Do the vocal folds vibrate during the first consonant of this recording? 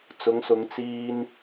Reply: no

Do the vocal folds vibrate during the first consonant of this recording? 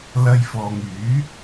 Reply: yes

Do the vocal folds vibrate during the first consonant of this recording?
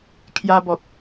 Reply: no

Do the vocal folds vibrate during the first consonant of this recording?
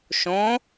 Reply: no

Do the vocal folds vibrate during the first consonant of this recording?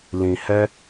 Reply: yes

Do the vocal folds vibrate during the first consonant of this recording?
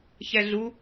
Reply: no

